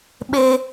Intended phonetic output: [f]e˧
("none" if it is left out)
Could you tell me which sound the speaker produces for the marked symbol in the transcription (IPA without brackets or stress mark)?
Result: ɓ